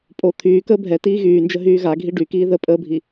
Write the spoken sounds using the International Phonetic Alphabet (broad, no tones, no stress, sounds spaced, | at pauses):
pʼ o t̪ʰ yː k əː bʱ ɛ t iː ɣ yː n d͡ʒ ə ɦ yː ɣ a ɡʱ i ɖ y k iː ð ə pʼ əː bʱ i